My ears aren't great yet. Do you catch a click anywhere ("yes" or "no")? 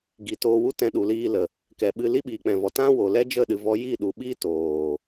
no